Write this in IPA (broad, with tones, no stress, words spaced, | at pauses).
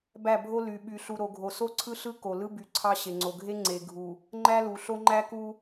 bæ˦˨bʱo˦ ly˨ɓy˨ ɬu˨ɾo˨ɡʱo˨so˦ ǀʰɯ˦ɬɯ˦ ko˨lɯ˦ by˨ǀʰɑ˦ ɕe˨ŋ͡ǀo˨ɡʱe˦ ŋ͡ǀe˨ɡʱu˨ | ŋ͡ǃæ˦lu˨ɬo˦ŋ͡ǃæ˦ ku˦